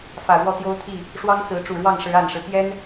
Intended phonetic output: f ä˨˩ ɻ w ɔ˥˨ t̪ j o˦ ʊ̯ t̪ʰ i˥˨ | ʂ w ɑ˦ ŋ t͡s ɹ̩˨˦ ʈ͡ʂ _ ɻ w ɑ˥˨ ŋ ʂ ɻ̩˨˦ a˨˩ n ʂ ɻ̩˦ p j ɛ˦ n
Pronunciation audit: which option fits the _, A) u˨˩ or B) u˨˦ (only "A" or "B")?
A